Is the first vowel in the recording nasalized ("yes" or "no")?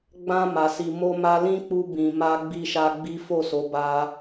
yes